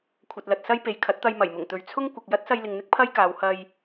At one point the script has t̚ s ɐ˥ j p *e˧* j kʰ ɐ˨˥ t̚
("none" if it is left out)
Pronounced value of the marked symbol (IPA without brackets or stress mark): e˨